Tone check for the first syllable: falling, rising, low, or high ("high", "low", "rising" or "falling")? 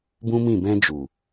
high